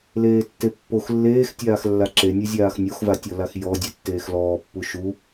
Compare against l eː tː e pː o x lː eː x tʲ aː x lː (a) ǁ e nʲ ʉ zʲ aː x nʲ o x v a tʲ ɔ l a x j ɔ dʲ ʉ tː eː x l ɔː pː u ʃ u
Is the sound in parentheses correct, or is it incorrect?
correct